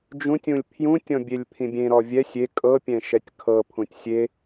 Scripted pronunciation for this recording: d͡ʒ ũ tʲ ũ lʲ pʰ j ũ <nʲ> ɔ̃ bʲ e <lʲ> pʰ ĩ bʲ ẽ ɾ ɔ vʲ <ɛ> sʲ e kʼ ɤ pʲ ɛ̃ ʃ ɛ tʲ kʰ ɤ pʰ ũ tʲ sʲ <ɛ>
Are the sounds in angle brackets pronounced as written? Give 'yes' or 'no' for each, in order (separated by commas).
no, yes, yes, no